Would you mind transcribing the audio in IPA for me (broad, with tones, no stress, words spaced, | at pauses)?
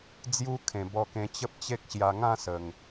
d͡zju˦kʰẽ˨˩ bɔ˧kẽ˧t͡ɕə˦p̚t͡ɕe˦k̚ ɕja˧ŋã˥˧sə˨˩ŋ